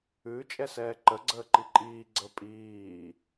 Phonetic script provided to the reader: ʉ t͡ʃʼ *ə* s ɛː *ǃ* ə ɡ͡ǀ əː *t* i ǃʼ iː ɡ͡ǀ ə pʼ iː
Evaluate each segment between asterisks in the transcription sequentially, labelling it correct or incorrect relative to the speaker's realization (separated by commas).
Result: incorrect, correct, incorrect